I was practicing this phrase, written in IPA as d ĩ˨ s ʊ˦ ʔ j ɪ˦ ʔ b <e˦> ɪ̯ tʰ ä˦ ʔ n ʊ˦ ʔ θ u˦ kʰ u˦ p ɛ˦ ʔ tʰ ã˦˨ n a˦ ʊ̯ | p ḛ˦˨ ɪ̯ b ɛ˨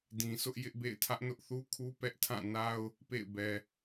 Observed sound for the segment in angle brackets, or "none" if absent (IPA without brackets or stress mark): ḛ˦˨